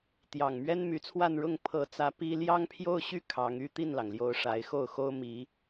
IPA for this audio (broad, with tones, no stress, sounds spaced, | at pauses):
t̪ j ɑ˨˩ ŋ m ɥ ɛ˥ n m y˧˥ t͡sʰ w a˥˧ n ɻ ʊ˥˩ ŋ pʰ ɤ˧˥ t͡s ä˧˥ p i˥ l j ɑ˥ ŋ pʰ j o˥˧ ʊ̯ ɕ y˥˩ kʰ ɑ˧˥ ŋ y˥ t̪ i˥˩ n l ɑ˩ ŋ l j o˧˥ ʊ̯ ʂ a˧˥ ɪ̯ x o˥˩ ʊ̯ x o˥ ʊ̯ m i˧˥